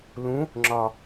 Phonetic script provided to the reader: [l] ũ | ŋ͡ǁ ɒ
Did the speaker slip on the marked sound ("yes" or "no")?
no